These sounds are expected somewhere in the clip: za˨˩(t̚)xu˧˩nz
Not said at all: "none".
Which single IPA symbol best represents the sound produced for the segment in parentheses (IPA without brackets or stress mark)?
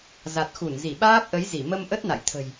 t̚